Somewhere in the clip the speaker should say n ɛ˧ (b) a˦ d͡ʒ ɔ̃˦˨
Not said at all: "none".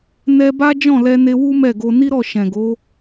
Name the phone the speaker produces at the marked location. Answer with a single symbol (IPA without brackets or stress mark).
b